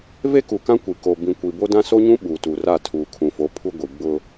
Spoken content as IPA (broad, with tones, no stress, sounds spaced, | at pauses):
v e˦ k u˨ k ã˦ kʷ i˨ k o˨ b ĩ˨ kʷ i˨ b o˦ d ã˦ s o˦ ɲ ũ˦ ɓ uː˨ t u˨ r a˦˨ tʰ uː˨ kʰ ũ˨ f o˨˦ pʰ u˦ ɡʷ i˨ ɡ͡b ʊ˦